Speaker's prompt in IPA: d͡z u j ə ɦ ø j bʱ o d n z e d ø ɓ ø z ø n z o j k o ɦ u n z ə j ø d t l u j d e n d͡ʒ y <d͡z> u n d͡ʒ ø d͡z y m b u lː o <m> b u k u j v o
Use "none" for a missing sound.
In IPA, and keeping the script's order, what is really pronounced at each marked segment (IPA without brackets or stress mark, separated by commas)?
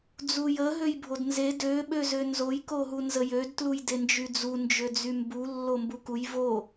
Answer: d͡z, m